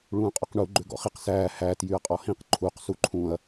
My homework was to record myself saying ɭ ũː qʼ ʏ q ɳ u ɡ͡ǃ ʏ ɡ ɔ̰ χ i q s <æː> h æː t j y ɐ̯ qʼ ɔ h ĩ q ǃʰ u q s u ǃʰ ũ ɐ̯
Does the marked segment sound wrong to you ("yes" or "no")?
no